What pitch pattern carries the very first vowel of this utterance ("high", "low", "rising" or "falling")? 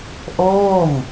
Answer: falling